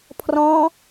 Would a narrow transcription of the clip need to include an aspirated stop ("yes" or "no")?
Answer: yes